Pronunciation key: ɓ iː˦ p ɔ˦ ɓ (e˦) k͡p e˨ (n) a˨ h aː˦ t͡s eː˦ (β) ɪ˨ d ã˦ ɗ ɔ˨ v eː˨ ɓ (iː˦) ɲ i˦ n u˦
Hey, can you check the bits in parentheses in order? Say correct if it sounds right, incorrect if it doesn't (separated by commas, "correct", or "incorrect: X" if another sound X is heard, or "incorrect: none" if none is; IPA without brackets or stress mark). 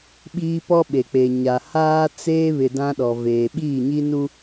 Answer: incorrect: e˨, incorrect: ɲ, correct, incorrect: iː˦˨